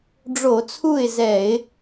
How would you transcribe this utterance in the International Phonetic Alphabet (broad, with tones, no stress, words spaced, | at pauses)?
ɖ͡ʐo˧˩˧t͡sʰu˥˨ɪ̯zɛ˧˩˧ɪ̯